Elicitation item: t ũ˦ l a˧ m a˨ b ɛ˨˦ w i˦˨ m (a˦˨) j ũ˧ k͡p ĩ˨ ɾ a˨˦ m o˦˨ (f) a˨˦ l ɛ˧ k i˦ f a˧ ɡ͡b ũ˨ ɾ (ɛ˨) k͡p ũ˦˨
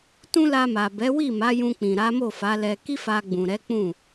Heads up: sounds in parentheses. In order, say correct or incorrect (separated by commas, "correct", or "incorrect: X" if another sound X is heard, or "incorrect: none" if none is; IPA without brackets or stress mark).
incorrect: a˨˦, correct, incorrect: ɛ˨˦